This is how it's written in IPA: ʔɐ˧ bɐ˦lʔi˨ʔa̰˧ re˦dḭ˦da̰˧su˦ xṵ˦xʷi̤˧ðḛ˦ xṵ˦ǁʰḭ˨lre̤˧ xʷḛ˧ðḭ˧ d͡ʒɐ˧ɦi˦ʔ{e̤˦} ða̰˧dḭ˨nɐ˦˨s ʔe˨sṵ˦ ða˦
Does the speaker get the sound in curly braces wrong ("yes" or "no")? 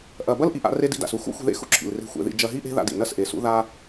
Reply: no